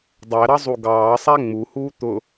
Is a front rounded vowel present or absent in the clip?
absent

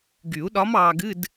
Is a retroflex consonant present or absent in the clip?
absent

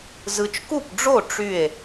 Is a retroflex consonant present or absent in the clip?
present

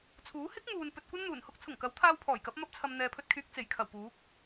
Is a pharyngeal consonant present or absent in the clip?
absent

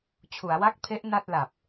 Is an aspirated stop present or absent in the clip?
present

